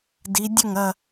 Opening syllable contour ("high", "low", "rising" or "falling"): rising